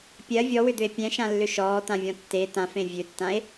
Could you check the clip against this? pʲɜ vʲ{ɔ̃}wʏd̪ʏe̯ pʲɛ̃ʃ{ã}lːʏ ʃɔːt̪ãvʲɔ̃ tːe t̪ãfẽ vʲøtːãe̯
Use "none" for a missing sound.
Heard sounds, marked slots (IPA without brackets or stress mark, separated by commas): ɔ, ã